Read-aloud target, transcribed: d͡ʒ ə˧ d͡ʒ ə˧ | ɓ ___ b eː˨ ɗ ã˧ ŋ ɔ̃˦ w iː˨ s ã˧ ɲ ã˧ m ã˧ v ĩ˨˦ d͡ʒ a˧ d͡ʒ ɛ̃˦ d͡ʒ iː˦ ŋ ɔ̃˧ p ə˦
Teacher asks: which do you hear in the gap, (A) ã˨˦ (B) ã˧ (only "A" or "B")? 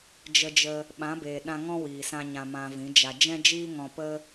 A